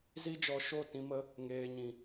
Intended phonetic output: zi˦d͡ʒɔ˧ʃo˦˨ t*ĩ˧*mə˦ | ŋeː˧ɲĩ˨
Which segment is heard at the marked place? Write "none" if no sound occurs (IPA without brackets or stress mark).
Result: ĩ˧